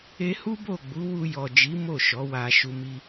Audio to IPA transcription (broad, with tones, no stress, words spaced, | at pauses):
e˦ hu˦bo˦˨ɡ͡bu˨˦wu˧ jɔ˨d͡ʒi˨˦ mo˦˨ʃɔ˨˦wa˧ ʃu˧mi˧